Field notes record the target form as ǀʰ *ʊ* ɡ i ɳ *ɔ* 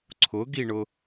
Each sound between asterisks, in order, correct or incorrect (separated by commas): correct, incorrect